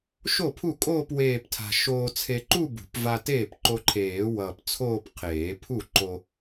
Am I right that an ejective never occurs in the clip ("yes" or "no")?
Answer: no